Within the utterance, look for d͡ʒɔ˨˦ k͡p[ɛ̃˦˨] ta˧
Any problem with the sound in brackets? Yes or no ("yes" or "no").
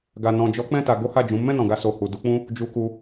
no